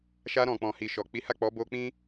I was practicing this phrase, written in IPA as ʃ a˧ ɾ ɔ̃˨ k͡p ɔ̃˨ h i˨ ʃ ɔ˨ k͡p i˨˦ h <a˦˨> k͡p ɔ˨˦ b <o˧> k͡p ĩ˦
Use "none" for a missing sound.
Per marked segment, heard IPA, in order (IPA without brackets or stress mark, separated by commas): a˦˨, o˧